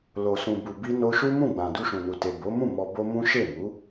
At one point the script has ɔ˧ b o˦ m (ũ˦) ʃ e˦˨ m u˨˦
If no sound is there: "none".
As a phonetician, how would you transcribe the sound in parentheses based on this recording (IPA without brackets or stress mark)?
ũ˦